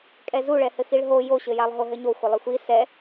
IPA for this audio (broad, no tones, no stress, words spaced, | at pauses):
kʼɛzuɭɛhɘ xiɭɦo joɕɘjalˠɦo ɦɘɲo xʷɘlˠixʷi sɛ